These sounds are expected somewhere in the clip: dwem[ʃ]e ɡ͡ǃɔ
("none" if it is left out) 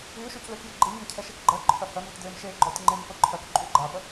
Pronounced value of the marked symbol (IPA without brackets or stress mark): ʃ